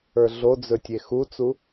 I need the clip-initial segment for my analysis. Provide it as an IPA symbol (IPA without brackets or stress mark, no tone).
ə˞